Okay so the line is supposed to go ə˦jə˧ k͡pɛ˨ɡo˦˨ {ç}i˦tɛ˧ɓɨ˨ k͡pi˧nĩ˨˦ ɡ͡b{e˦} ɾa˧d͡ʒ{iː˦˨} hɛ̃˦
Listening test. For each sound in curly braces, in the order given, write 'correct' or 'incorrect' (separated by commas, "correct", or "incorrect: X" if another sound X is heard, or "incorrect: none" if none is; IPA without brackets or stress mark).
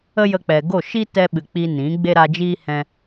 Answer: incorrect: ʃ, correct, incorrect: iː˦